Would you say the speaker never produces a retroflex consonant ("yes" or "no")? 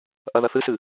yes